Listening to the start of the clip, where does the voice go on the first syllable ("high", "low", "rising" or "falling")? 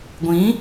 rising